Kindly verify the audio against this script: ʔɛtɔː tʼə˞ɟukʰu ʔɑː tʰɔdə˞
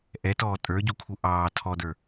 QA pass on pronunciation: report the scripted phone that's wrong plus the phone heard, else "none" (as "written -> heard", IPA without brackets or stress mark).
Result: none